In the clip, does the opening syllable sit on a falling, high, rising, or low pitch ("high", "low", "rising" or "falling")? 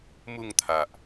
falling